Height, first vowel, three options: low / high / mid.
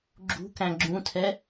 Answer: high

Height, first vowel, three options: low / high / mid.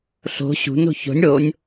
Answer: mid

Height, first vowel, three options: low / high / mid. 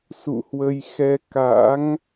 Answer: high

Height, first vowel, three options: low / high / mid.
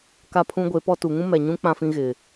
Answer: low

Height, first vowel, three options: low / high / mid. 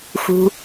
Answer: high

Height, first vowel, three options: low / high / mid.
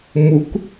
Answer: high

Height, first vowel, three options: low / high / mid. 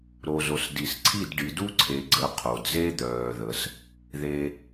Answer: mid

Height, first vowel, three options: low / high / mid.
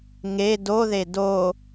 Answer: mid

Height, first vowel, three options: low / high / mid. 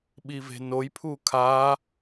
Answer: high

